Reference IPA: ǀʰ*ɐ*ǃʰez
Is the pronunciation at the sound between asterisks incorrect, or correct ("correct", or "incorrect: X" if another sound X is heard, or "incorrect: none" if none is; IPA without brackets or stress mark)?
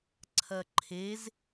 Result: correct